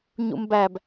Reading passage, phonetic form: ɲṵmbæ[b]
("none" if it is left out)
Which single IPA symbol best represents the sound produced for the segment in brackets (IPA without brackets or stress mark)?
b